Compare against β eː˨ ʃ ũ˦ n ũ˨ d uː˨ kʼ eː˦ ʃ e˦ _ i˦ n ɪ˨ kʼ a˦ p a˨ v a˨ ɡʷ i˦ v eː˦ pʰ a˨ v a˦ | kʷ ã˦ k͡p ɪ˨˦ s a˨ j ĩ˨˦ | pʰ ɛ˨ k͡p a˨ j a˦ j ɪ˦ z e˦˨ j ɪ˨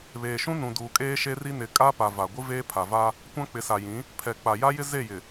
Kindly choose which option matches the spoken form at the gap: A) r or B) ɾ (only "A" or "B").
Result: A